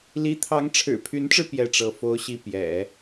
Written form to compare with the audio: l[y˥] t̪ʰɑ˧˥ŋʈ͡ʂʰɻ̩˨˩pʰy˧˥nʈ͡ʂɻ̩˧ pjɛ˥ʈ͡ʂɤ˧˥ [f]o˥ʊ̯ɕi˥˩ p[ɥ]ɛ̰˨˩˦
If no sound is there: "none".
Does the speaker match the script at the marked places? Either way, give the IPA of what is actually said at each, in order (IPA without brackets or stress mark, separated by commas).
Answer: i˥, f, j